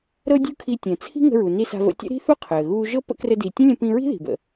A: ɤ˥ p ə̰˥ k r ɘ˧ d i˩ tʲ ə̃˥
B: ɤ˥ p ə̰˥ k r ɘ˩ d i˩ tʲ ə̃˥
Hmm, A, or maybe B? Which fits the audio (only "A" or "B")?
A